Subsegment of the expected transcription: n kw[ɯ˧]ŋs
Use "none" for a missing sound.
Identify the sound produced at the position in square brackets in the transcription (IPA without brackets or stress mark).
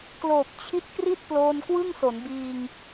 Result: ɯ˥˩